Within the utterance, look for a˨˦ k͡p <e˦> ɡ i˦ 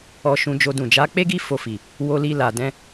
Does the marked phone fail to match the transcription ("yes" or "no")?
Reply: no